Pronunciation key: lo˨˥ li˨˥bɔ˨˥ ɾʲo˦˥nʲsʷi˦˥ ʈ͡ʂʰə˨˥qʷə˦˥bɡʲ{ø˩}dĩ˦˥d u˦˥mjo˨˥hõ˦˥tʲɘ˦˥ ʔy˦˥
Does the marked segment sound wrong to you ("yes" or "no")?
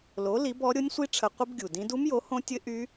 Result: yes